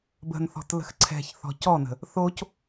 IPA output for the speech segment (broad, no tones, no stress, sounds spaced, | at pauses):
b ə̤ n θ ɔ̤ t l ə̤ x ǀʰ ɛ̤ ç θ ɔ̤ c ɔ n ə̤ | θ o c